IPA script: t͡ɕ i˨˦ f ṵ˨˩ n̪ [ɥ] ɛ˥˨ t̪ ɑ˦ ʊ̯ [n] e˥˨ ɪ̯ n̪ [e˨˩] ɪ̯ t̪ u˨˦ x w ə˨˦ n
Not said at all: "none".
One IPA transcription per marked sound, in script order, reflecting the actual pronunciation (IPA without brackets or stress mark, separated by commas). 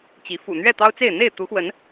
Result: ɥ, t͡s, e˥˨